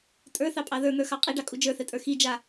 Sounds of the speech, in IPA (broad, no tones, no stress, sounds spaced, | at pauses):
tʼ ə˞ θ ɑ pʼ ɑ ð ə˞ n̪ ə˞ x ɑ qʼ i ɖ ɑ kʼ u d͡ʒ ə˞ θ ɛ tʼ ə˞ x i d͡ʒ a